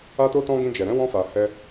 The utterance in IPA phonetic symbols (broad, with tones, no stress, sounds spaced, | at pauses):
a˦ t o˦ t ɔ̃˦ ɡ ĩ˧ d͡ʒ ɛ˨ ɾ ɛ̃˨˦ w ɔ̃˧ f a˨ h ɛ˧